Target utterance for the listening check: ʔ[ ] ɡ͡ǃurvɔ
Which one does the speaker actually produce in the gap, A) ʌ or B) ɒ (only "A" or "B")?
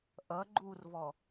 A